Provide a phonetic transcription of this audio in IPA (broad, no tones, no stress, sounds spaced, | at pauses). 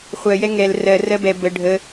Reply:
χʷ ɜ j ɛ ŋ ɛ l r ɜ r ɜ b ɛ b ə ɖʱ ə